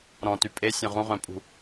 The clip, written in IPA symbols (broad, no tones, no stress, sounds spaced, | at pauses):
ɾ ɔ̃ t y pʼ e sʲ ɔ̃ ʁ ũ ʁ œ̃ pʼ ṳ